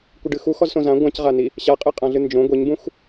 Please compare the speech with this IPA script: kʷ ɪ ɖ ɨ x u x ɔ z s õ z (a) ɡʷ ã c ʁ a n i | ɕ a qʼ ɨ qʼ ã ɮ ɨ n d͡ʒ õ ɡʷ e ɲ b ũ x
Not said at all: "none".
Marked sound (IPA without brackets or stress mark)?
ã